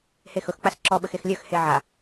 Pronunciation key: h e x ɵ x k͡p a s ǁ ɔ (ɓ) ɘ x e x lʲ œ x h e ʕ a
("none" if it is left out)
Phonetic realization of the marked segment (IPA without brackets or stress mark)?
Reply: ɓ